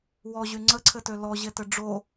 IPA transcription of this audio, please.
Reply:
w ɔ ʑ y ŋ͡ǀ ə ǀʰ ɘ t ø l ɔ ʑ e t ɘ ɖ͡ʐ o

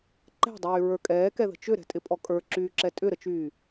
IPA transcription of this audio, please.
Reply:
ǃ ɛ̤ dˤ yː ɹ ə˞ kʼ ɛː k ɛ ð ə̤ t͡ʃ ʏ ɾ ɛ̤ tʼ ɪ pʼ ɔ kʼ ə˞ ǁ yː ǁ ɛ tʼ ʏ ɾ ə t͡ʃ yː

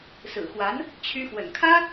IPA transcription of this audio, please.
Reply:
s ɹ̩˨˩ x w a˧˥ n | t͡ɕʰ y˥ x w ə̰˨˩ n kʰ ä˥

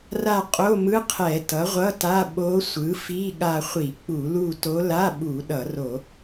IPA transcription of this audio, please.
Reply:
r a˦˨ qʼ o˧˥˧ m ɯ˧˥˧ qʰ ɛ˧˩˧ t ʌ˩˥ ʁʷ ʌ˧˥˧ t a˧˥˧ ɓ o˧˥ sʷ ɯ˩˥ f i˧˥˧ ɠ a˦˨ χʷ i˧˩˧ k͡p u˧˩˧ l u˦˨ t o˧˥ l a˧˥˧ ɓ u˧˩˧ ɗ ʌ˧˩˧ r o˧˩˧

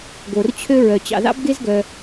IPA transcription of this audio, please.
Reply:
ɡ o˧ r t͡ɕʰ ø˥ ɹ œ˧ t͡ɕ ɑ̰˧ ð ɑ̰˥ b ɡ e˥ z ɡ œ˧

